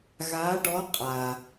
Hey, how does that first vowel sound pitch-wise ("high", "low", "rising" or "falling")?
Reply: rising